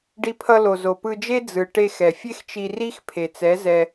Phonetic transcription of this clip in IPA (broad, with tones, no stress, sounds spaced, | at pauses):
ɖ i˧ pʰ ʌ˧ l o˨ z o˨ p ɯ˧ d͡ʒ e˦ d͡z ɯ˨ ʈ e˧ x ɛ˨ fʲ e˦ x t͡ʃ i˧ r i˦ x pʰ e˨ t͡s ɛ˨˦ z ɛ˧